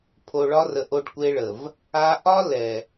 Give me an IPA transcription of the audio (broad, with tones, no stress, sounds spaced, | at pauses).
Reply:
pʰ o˨ ɭ ɒ˦ r ə˨ ʔ o˦ ɖ kʷ e˦ ɭ ə˨ v | a˦ ʔ ɒ˦ l ɛ˨